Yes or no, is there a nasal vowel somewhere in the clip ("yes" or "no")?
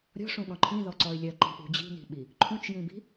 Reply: yes